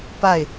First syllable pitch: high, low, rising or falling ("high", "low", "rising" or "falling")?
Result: falling